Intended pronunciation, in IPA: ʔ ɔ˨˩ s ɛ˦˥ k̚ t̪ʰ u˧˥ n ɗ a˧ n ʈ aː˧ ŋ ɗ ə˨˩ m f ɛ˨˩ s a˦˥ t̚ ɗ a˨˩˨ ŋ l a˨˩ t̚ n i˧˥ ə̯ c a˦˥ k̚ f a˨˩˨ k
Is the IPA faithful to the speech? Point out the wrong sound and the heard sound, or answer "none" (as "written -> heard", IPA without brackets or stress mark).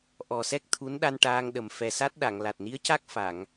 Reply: k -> ŋ